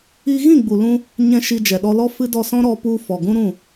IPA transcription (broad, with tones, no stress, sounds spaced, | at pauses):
i˧ ɣ ĩ˦˨ ɡ͡b u˨ l ũ˧ | ɲ ɛ̃˧ ʃ i˧ d͡ʒ ɛ˨ ɗ ɔ˧ l ɔ˦ f ɨ˦ d ɔ˧ s ɔ̃˦ ɾ ɔ˧ p u˧ f ɔ˨ ɡ ũ˦ ɾ ũ˦˨